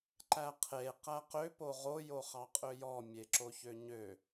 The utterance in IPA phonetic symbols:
ǃ æ qʰ e q æ q ø p o ʁ o j o χ ɑ qʼ ø j ɔ mʲ e ǁ o ç ø ɲ ø

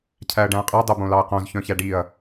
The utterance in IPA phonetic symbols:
cʰ æ ɐ̯ ɖ æ̃ ɐ̯ qʼ ɛ dˤ o b õ l ɑ ɐ̯ q õ z ç œ̃ ç æ ɖ i ɐ̯

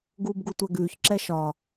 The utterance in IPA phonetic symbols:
ɡ uː b ɡ u tʷ ɛ ɡ ʉː ç ǁ ɛ ʃ ɒ

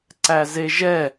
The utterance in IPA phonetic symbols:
ǀ æ z e ʒ ɛ

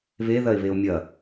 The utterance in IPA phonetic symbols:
β e ð ɐ e̯ β e o̯ mʲ ɐ

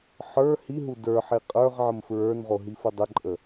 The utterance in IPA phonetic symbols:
ħ ə˞ h i ɦ u d ə˞ ħ i qʼ ə˞ ʁ ʕ ə m f ɹ ə˞ n ʁ o ɦ i f ə dˤ ə ǃʼ ə

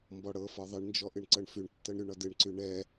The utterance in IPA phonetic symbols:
m b ɔ ɽ ɤ f ɒ ðˤ ɨ ɳ n d͡ʒ ɔ ʔ ɨ ɳ ǀ ɤ ɳ f y ɳ tː ɤ ɳ ɾ y ɳ ɒ d ɨ ɳ ǀ y ɳ ɛ

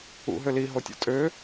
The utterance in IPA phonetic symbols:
ṵ ɦ ø l i ɦ o tʲ ɔ̰ tʼ ø

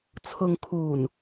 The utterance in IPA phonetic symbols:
t͡sʰ ʊ˨ ŋ kʰ uː˨˩ n

